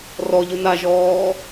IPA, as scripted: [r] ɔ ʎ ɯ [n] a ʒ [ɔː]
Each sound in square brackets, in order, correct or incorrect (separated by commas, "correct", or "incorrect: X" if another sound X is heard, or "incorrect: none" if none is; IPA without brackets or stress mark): correct, correct, correct